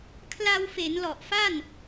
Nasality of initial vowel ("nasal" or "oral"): oral